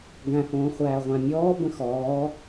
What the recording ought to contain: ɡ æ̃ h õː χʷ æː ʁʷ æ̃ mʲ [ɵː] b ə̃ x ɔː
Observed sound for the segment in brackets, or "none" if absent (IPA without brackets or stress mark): ɔː